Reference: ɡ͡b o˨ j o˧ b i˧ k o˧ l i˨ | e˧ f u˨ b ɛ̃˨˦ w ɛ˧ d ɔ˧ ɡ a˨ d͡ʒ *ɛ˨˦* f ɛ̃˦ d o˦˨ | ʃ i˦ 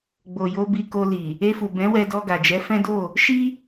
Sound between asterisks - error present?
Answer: no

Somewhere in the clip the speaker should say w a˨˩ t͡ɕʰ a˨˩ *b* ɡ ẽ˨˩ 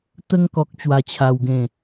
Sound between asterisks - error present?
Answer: yes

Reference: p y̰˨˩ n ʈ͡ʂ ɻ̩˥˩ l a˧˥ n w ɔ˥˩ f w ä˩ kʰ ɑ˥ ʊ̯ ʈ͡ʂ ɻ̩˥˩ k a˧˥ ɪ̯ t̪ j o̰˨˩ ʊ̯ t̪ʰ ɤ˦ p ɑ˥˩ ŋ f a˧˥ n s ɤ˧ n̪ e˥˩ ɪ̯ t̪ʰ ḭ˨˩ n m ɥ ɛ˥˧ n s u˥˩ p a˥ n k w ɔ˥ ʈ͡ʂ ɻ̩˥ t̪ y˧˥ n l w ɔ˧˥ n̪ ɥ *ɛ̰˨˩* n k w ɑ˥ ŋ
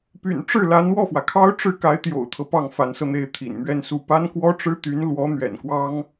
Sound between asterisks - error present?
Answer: no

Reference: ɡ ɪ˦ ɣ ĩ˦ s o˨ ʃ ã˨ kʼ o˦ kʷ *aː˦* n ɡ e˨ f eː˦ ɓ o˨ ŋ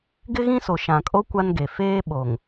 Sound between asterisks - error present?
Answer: yes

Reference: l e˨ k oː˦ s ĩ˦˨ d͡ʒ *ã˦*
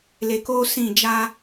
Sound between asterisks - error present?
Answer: yes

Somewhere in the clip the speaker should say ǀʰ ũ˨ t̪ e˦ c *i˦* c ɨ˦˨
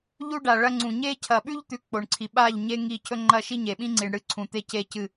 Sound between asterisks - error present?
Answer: yes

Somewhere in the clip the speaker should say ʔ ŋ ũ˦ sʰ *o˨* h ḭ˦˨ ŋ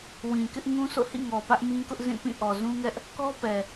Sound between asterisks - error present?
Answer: yes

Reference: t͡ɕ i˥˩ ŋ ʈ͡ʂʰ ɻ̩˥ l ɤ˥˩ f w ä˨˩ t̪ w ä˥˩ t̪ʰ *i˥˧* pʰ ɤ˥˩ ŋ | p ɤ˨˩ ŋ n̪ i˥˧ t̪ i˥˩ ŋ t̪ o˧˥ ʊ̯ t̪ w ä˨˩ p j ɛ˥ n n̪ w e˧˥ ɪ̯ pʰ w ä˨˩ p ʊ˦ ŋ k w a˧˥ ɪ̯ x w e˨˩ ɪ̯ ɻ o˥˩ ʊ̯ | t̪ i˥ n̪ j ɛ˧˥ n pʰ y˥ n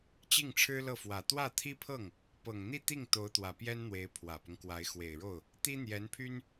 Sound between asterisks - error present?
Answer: yes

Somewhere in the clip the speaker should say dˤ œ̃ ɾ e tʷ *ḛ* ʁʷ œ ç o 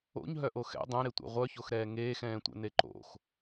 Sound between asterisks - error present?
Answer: yes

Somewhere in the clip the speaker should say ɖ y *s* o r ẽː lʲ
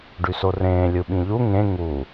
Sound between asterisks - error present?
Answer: no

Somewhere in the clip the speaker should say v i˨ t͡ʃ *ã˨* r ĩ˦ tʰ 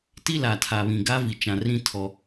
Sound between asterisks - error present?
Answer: no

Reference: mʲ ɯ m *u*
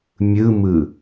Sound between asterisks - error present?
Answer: yes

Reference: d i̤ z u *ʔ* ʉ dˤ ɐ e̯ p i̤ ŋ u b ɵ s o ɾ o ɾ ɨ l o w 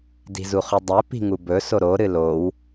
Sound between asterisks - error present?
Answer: yes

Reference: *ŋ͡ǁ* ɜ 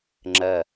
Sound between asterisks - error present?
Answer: no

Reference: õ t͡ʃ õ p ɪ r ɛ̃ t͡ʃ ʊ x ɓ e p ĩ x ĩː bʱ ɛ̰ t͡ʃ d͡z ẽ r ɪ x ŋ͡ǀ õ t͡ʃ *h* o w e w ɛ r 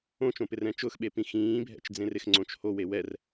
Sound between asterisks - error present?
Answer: no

